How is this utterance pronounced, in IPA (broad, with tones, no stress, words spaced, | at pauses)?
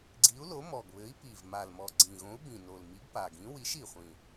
ɡ͡ǀi˨˥u̯lo˨˥ mɔ˨˩ɡβɘ˨˥i̯pi˨˩v ma˨˩lmɔ˨˩ ɡ͡ǀĩ˨˩ɣõ˨˥u̯bĩ˨˩ no˨˩l mi˨˥ɡpa˨˩ɡĩ˨˥ wi˨˥ʃi˨˩χʷĩ˨˩